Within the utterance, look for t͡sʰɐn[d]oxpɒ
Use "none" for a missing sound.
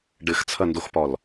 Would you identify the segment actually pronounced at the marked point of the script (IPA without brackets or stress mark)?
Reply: d